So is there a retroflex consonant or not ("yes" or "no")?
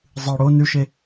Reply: yes